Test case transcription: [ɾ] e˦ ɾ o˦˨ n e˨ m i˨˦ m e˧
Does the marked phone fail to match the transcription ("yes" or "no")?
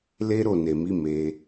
yes